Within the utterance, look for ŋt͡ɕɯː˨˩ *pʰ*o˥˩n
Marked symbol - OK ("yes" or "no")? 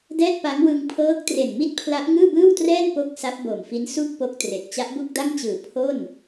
yes